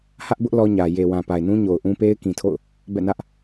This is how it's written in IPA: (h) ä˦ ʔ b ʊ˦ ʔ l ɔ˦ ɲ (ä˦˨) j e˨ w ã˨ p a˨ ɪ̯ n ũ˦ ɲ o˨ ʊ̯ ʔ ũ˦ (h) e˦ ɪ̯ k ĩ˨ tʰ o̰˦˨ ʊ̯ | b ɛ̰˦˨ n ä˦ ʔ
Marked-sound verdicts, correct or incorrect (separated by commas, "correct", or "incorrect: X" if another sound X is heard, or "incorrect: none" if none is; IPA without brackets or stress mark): correct, incorrect: ä˨, incorrect: p